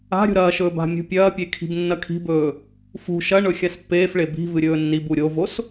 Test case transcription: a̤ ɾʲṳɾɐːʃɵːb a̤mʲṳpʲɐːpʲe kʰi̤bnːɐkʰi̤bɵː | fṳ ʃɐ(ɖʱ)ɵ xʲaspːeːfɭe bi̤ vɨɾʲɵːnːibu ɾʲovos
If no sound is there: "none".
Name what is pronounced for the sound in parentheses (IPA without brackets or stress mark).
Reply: ɳ